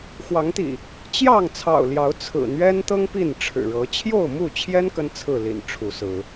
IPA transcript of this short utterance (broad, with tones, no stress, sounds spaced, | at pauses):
x w ɑ˨˦ ŋ t̪ ḭ˨˩ | t͡ɕ j ɑ˥˨ ŋ t͡sʰ ɑ̰˨˩ ʊ̯ l j ɑ˨˦ ʊ̯ t͡sʰ ɹ̩˨˩ n̪ ɥ ɛ˦ n t̪ ɤ˦ ŋ p i˥˨ n ʈ͡ʂʰ ɻ̩˨˩ ɻ ɤ˨˦ t͡ɕʰ j o˥˨ ʊ̯ m u˥˨ t͡ɕʰ j ɛ˦ n k ə˦ n t͡sʰ ɹ̩˥˨ l ḭ˨˩ n ʈ͡ʂʰ u˨˦ s ɹ̩˨˦